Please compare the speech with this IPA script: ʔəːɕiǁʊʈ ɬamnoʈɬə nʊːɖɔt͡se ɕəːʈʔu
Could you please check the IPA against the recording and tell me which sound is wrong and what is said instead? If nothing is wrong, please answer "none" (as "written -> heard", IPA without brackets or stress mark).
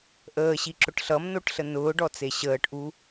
a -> ʌ